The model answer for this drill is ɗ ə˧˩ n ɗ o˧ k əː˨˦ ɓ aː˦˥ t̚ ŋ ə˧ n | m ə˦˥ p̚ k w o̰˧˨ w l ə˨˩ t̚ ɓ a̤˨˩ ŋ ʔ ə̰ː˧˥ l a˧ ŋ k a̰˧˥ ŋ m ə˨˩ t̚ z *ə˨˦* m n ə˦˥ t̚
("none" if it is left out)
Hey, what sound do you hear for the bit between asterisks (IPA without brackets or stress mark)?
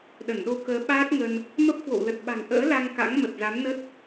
a˨˦